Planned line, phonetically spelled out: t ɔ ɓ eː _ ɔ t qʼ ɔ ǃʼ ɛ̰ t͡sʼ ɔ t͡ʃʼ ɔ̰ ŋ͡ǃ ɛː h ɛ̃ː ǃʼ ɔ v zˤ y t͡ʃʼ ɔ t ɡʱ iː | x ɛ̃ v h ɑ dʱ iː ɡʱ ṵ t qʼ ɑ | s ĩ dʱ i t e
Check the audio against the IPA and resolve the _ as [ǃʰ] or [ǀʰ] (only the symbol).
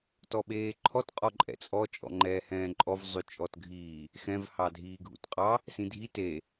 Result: ǃʰ